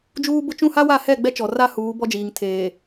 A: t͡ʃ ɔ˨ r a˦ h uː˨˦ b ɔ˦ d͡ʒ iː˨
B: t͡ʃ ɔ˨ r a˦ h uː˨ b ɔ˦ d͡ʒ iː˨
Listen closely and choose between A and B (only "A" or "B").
A